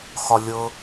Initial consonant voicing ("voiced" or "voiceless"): voiceless